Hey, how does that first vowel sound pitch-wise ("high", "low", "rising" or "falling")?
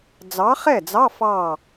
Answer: rising